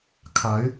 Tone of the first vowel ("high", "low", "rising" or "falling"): rising